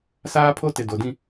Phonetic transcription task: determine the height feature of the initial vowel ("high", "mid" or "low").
low